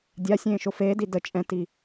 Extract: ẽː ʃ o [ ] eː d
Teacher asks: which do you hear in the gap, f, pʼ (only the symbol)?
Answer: f